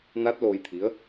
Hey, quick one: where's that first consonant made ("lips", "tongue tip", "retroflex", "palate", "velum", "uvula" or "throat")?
tongue tip